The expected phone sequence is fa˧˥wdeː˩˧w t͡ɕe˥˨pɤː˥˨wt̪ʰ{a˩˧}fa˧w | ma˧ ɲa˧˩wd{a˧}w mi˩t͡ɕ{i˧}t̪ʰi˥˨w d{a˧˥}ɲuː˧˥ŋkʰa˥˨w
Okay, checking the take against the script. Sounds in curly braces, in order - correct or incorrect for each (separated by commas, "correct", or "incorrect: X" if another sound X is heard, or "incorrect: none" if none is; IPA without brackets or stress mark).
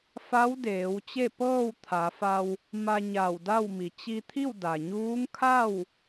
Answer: correct, incorrect: a˥˨, correct, incorrect: a˩